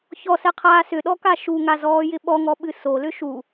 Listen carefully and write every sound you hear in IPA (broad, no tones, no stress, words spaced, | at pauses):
çɔsɛqʰaː sʏɗɔka ʃuŋazɔːjɪ ɓɔŋɔɓɨ solʏ ʃu